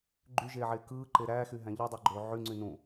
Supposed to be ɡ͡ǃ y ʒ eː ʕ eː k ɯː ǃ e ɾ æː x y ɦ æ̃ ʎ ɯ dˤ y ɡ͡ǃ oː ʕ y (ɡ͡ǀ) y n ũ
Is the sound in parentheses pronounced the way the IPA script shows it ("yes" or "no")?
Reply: no